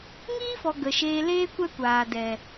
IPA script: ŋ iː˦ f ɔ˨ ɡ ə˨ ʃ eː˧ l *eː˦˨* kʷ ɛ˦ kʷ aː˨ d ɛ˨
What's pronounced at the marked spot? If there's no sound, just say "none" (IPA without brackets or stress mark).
eː˦